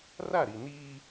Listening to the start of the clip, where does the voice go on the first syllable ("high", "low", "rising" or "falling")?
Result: falling